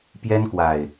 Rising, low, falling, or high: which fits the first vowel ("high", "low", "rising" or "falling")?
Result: high